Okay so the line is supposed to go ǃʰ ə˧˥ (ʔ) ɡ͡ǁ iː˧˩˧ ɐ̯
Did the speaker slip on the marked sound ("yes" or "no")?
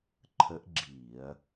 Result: no